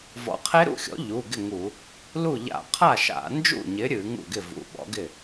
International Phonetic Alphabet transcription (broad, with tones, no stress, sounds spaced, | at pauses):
v ɔ̰˨˥ qʰ e˦˥ ɾ ṵ˥˩ xʲ ɔ̰˨˥ ʎ u˩˧˩ ɡ ɪ˥˩ ŋ u˧˩˧ | l u˥˩ ʎ a̰˧˩˧ qʰ a˥˩ ʃ a̰˧˩˧ n d͡ʒ ṵ˥˩ ɲ ɪ˨˥ ɾʲ ɨ˧˩˧ ŋ ṵ˥˩ ɡ ɪ˥˩ v ṵ˩˧˩ ɓ ɔ̰˨˥ ɡ ɪ˥˩